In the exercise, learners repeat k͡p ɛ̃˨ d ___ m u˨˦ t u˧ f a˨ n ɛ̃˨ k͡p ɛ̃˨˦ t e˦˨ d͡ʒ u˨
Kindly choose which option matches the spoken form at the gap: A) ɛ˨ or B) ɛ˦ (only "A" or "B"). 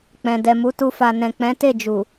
A